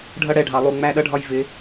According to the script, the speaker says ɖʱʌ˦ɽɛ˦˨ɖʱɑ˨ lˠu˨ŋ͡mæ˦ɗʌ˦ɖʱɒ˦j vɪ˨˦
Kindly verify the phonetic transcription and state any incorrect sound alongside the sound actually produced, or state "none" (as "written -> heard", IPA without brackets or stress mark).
none